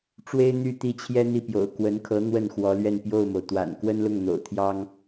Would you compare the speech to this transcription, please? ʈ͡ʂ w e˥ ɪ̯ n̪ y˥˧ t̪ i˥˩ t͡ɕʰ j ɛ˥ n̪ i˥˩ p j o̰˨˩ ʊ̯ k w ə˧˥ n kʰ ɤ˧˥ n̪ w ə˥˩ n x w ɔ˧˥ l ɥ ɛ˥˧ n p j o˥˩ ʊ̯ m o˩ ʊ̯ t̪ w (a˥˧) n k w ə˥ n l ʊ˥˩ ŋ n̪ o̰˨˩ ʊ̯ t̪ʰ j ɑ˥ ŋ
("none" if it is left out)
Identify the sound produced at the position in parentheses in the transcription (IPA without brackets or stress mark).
a̰˨˩